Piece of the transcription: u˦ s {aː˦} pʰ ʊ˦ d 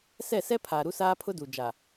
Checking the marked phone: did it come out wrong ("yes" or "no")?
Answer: no